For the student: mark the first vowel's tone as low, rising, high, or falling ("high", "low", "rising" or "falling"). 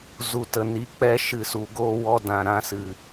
low